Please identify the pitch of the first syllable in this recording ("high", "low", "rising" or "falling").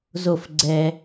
falling